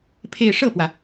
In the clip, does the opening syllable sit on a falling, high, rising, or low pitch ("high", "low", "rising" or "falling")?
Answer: falling